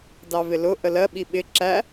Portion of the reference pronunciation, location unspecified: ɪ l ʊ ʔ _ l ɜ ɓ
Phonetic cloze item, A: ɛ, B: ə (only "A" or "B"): B